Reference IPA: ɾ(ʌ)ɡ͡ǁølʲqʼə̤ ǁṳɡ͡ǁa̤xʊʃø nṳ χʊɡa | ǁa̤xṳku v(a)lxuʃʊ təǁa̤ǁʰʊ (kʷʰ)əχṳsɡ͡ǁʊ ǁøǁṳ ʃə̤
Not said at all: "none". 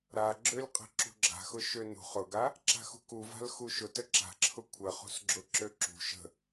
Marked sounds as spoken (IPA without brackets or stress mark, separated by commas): a, a̤, kʷʰ